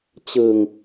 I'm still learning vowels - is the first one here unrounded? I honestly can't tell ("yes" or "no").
yes